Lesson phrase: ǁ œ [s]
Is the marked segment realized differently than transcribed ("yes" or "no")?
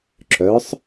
yes